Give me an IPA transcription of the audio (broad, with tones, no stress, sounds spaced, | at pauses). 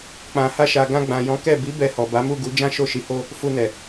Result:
k͡p ã˨ h a˧ ʃ a˨ ɡ ã˧ ɡ͡b ã˨ j ɔ̃˨˦ k ɛ˦˨ b i˨˦ b ɛ˧ h ɔ˨ b a˨˦ m u˦˨ ɡ u˨˦ d͡ʒ ã˦ ʃ o˦˨ ʃ i˨˦ h o˦˨ | f u˧ n ɛ˨